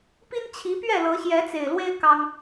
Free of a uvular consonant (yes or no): yes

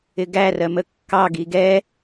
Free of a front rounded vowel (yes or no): yes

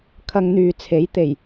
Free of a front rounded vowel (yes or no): no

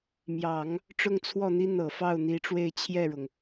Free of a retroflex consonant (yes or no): no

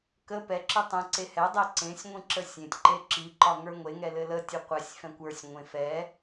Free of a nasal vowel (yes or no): no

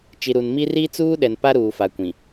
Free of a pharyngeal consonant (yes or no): yes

